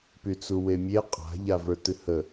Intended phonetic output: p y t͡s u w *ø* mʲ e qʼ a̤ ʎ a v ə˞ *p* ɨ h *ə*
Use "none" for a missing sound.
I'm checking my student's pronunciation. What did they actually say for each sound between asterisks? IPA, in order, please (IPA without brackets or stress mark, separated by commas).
e, t, ə